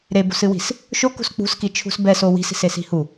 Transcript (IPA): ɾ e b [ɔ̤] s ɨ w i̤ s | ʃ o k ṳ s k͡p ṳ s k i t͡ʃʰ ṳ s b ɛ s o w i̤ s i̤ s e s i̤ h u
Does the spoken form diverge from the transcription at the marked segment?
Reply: yes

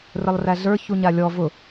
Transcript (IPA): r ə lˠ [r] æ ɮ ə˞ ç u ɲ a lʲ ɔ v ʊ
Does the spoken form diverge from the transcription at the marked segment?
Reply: no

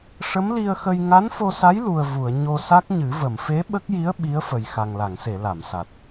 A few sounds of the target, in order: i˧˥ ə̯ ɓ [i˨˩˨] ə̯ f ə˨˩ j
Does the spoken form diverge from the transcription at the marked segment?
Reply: yes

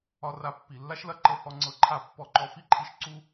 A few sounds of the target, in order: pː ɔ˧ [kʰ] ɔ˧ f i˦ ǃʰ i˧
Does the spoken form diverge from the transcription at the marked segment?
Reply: yes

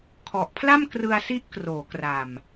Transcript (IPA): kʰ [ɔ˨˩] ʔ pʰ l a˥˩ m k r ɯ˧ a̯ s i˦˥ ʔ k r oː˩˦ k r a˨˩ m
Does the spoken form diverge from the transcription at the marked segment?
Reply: no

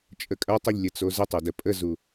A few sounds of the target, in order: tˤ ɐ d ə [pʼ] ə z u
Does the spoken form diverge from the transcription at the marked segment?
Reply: no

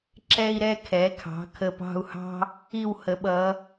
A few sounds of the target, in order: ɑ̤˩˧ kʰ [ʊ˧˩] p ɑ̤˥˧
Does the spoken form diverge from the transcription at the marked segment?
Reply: yes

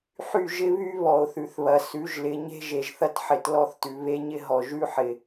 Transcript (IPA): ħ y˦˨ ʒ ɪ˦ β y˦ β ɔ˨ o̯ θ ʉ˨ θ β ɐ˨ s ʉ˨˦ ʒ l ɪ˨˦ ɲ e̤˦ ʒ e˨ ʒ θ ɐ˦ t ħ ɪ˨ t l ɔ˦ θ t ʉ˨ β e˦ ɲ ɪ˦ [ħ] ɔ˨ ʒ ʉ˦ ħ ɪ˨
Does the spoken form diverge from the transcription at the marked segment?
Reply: yes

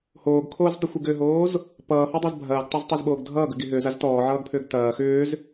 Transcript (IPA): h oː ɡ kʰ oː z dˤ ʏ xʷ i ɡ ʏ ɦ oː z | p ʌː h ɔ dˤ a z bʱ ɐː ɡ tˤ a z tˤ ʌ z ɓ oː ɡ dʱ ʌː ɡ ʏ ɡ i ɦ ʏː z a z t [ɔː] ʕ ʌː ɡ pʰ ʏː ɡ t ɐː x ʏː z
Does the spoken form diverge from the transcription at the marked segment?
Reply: no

